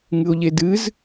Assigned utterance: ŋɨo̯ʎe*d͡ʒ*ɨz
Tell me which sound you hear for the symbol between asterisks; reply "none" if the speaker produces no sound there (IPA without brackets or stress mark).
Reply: d